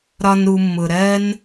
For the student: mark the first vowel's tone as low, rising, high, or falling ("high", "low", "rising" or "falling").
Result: high